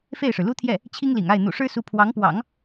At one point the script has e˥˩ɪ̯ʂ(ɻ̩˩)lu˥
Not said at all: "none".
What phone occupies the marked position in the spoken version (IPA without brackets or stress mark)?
ɻ̩˩